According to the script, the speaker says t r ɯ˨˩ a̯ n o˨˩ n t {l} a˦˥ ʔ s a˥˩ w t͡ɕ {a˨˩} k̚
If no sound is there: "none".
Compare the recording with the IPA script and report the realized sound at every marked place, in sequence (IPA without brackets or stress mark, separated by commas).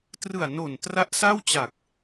r, a˨˩